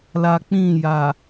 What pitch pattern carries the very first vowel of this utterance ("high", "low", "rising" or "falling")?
low